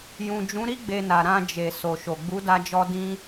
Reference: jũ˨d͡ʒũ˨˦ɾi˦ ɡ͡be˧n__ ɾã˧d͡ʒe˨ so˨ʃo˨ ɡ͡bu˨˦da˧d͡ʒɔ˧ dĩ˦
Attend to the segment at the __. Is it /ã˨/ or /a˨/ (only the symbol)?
a˨